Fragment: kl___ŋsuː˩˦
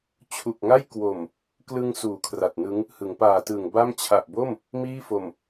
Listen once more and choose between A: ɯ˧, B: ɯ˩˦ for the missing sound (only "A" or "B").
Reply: A